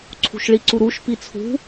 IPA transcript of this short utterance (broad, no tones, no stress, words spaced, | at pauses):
ǀʰṳʃɭiǀuɾuʃ pit͡sʰṳ